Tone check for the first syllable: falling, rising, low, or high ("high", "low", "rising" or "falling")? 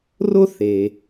high